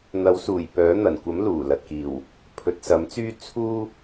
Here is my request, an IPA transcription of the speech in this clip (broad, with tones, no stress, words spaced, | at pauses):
n̪ɐ˨˥wsuː˨˩j pœː˨˥n̪ɐ˨˩nkʷɐ˨˥m luː˨˩lɐ˨t̚kiː˨˩w | pʰɵ˨t̚sɐ˨˥mt͡syː˥ t͡sʰuː˥